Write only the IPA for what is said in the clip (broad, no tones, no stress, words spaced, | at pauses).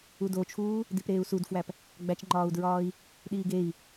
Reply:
udot͡ʃʰuː | dipɾeːu̯sudfwæp | ɡ͡bæt͡ʃŋ͡ǃɒːu̯dɹɒːi̯ | ɗiːɡei̯